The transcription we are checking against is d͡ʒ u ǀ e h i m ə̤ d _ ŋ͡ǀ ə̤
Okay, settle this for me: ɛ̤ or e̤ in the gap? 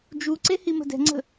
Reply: ɛ̤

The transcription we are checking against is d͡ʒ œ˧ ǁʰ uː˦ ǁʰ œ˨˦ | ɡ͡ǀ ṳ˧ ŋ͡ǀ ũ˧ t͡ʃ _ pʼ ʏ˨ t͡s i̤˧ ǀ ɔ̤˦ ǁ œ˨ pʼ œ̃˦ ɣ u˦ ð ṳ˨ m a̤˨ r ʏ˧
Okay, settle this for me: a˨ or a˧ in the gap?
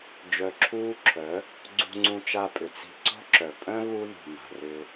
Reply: a˧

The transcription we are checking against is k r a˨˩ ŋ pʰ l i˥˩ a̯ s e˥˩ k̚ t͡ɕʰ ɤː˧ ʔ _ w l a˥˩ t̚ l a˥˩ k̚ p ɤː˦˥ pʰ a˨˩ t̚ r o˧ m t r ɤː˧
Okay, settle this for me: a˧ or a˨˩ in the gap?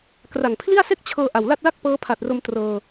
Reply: a˨˩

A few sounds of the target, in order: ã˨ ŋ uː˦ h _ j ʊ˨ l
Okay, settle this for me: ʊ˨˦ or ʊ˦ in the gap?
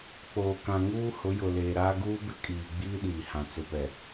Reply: ʊ˨˦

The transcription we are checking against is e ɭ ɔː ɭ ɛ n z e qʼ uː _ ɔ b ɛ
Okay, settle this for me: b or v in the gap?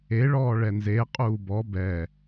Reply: b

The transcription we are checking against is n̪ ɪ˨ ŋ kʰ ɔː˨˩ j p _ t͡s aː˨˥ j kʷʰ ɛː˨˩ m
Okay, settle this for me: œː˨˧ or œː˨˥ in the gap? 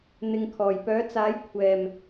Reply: œː˨˥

